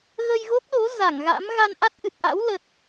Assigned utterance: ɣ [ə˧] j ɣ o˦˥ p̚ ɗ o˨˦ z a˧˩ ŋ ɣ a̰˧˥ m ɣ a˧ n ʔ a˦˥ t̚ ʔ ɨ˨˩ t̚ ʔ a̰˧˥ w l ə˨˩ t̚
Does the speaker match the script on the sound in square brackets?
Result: yes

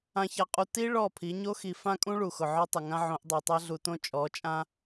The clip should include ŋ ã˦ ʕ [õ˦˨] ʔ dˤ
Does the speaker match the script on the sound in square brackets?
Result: no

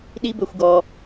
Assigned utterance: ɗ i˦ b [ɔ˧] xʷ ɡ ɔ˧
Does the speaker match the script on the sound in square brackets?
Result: no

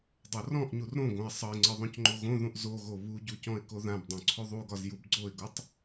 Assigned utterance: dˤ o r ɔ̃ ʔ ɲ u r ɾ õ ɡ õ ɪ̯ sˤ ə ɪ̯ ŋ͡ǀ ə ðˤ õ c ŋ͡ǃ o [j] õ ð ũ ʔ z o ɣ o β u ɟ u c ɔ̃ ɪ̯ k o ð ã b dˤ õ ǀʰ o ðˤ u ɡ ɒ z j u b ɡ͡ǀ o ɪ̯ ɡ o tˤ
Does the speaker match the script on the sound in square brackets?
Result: no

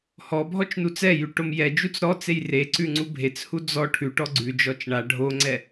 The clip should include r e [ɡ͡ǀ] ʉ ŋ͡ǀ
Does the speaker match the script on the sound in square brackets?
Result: no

